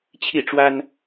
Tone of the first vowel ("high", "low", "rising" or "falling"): falling